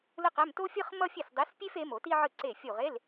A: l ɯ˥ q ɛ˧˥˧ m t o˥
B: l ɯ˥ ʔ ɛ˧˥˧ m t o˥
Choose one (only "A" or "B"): A